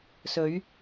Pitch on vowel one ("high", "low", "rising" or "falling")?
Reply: rising